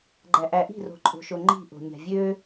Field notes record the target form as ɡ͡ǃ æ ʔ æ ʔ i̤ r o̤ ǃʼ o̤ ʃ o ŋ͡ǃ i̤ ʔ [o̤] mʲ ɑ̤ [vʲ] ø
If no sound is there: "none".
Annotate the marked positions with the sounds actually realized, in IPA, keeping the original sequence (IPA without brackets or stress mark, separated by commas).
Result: o̤, vʲ